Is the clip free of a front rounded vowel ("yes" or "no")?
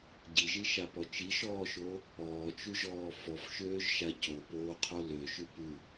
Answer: no